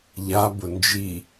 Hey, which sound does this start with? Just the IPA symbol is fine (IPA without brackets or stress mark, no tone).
ʎ